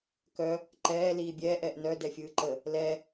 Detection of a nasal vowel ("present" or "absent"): absent